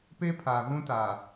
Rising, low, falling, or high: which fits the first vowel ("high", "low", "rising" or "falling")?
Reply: high